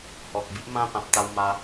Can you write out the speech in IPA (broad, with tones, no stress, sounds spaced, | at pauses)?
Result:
h ɔ˨ k̚ b i˦ ʔ m ã˦ p ã˨ p̚ t̪ a˧ w m a˧